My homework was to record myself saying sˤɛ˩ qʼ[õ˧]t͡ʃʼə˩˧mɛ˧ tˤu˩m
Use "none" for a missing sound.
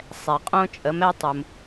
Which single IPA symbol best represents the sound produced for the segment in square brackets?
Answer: õ˧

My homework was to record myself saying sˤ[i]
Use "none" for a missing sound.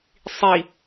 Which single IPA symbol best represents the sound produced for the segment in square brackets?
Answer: i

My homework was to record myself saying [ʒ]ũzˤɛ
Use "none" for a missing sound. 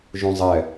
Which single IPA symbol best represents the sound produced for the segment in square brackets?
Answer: ʒ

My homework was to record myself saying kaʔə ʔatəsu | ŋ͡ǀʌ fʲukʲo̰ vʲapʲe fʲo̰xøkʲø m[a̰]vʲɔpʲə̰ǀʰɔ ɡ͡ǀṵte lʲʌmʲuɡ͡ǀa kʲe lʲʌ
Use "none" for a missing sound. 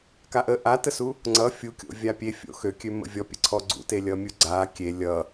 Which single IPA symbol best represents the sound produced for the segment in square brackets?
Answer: ə̰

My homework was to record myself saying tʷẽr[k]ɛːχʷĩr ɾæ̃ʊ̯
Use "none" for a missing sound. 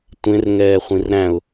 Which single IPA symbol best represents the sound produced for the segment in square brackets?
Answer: ŋ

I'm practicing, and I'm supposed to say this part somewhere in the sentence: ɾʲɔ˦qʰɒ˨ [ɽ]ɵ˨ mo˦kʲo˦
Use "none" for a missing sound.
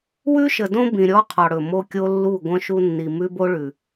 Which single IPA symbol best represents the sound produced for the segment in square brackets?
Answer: ɽ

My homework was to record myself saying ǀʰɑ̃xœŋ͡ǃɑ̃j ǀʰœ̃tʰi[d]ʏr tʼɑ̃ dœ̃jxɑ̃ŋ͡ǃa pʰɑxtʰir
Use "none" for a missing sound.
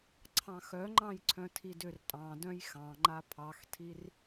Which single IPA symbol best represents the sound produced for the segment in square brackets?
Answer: d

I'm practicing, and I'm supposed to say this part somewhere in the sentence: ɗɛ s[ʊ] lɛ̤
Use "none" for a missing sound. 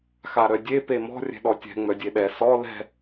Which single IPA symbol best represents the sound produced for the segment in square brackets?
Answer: ɔ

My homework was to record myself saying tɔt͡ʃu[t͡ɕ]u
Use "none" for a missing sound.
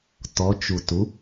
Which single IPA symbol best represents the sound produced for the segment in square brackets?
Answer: t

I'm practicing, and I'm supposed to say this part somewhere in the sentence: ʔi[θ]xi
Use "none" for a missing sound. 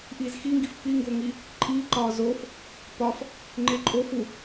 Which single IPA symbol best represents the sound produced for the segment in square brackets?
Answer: z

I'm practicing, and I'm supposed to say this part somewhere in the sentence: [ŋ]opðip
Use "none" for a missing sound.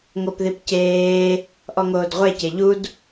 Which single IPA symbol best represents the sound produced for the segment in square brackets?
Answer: ŋ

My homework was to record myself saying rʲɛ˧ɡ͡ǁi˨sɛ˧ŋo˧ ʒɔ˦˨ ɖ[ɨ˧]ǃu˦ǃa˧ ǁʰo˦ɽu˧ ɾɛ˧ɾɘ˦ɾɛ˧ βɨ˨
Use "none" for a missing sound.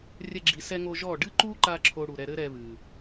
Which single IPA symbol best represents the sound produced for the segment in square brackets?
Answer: ɨ˦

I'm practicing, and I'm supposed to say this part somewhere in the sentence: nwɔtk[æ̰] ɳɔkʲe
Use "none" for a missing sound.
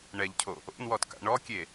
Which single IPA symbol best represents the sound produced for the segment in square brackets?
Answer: a̰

